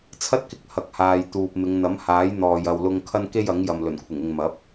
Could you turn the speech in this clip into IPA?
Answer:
t͡sʰɐ˥t̚kɪ˧k̚ hɐ˨k̚haː˨j t̪uː˨p̚mɪ˨˧ŋn̪ɐ˨˥m haː˨˥jn̪ɔː˨j ɐ˨wlʊ˧ŋ kʰɐ˥n ke˥jɐ˨˥ŋjɐ˨m lɵ˨˩nkʷʰɪ˨˩ŋɪ˨ŋ mɐ˨˥p̚

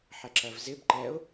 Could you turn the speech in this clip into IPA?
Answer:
ħɛǁɜvzɪb ǃɛʊ̯

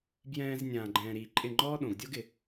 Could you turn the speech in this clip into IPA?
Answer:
bjɛ̃ː˧z nʲãː˨ɡ͡ǃɛ̃ː˨ ɾiː˨ǃʼɪ˦˨ŋ͡ǃɔː˦ ɗõ˨ɡdʲo˦ɡɪ˨

